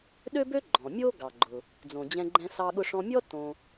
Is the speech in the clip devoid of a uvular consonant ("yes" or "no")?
yes